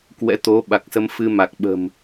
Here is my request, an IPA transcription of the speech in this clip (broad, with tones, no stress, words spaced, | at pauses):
kwɛ̰˧˥t̪o˨˦ ɓa˨˩k̚sə˧mfɨ˧ ma˨˩k̚ɓə̤˨˩m